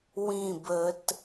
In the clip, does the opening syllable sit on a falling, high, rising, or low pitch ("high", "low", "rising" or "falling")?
falling